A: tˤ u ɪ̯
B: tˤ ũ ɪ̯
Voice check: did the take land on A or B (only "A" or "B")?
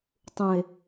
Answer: B